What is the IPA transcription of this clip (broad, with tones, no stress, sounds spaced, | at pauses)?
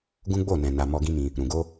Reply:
ɡ ũ˦ ɡ͡b o˦˨ n ɛ̃˨ n a˨ m ɔ˧ ɡ ĩ˦ m ĩ˧ | ɾ ũ˨ ɡ o˧